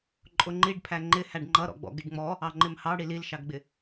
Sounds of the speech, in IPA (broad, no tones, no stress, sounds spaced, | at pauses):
ǃʼ ʊ ŋ͡ǃ i ɖ pʰ æ ŋ͡ǃ ɪ h æ ɖ ŋ͡ǃ ʌ ɾ ɔ̰ ɡ͡b ɔ̰ ɡ ɪ ɖ ŋ͡m ɔ | ɑ ŋ͡ǃ ɪ m h ɑ ɽ i l i l ʃ ɑ ɡ ɡ͡b ɪ